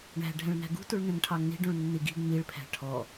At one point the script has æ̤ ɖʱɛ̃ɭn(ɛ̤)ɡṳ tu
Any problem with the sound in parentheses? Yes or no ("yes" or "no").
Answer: yes